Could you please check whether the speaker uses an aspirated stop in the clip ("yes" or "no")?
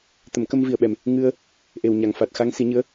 no